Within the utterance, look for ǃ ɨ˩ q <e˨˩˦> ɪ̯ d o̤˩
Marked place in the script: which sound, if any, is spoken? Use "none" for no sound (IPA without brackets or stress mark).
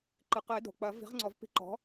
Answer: ɘ˨˩˦